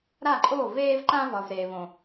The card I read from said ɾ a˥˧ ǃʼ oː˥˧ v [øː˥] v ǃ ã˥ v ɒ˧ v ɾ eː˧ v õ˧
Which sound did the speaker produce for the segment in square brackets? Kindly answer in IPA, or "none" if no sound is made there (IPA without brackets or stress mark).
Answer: eː˥